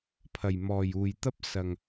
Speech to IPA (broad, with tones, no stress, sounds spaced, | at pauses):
pʰ ɐ˨˩ j m ɔː˨˩ j uː˨˩ j t̪ ɐ˥ p̚ s ɐ˨˩ ŋ